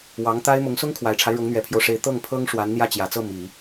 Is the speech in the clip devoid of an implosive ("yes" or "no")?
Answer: yes